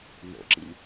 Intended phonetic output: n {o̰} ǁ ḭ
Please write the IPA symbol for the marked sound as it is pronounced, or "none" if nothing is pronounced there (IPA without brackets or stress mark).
o̰